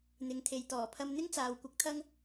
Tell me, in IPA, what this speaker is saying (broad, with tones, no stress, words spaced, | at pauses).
n̪ɪ˨˧ŋt̪ʰe˨j t̪ɔː˨˩pʰɐ˧mn̪ɪ˥ŋt͡saː˨w kʷɪ˧k̚t̪ʰɐ˥ŋ